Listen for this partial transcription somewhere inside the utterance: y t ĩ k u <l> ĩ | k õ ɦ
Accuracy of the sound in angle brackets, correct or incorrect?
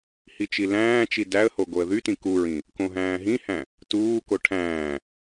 incorrect